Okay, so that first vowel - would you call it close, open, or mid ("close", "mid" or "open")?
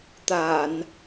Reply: open